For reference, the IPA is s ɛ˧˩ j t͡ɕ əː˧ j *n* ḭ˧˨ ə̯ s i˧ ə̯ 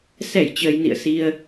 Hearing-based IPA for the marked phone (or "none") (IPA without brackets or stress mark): n